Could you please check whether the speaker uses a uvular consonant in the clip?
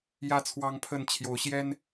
no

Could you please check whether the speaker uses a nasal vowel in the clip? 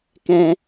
yes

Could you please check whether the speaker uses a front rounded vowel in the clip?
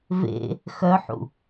yes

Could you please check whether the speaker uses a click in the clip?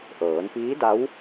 no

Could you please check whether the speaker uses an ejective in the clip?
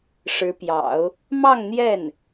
no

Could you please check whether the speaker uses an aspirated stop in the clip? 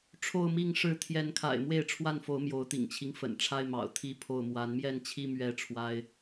yes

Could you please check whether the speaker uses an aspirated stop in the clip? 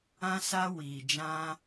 no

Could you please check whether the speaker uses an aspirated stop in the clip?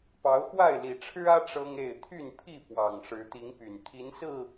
yes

